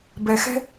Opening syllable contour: low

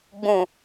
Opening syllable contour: low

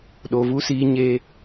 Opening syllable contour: low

